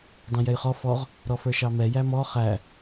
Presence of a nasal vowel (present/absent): present